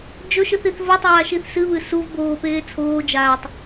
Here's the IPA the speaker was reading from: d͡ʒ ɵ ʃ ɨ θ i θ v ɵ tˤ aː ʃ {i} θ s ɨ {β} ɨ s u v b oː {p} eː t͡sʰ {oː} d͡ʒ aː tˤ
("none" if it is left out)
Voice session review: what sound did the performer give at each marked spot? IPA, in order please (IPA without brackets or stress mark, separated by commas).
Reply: i, β, p, oː